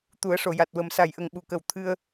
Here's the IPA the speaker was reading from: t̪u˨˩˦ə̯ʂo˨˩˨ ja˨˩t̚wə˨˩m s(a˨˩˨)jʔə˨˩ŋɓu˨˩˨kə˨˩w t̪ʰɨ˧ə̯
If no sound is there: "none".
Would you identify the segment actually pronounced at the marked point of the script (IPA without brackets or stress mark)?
a˨˩